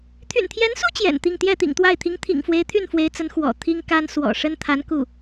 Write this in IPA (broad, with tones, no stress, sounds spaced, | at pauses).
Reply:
t̪ʰ y̰˨˩ n t̪ʰ j ɛ˧˥ n s u˥ t͡ɕ j ɛ̰˨˩ n t̪ i˥˧ ŋ t̪ j ɛ˥˩ t̪ ḭ˨˩ ŋ t̪ w a˥˩ ɪ̯ t̪ʰ i˧˥ ŋ t̪ʰ ḭ˨˩ ŋ f w e˧˥ ɪ̯ t̪ʰ y˥˩ n f w e˧˥ ɪ̯ t͡s ə˧˥ n x w ɔ̰˨˩ t̪ʰ i˥ ŋ k a˥ n s w ɔ̰˨˩ ʂ ə˥ n t̪ʰ a˧˥ n k u˥˩